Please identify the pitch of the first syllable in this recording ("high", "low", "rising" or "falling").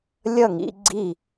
falling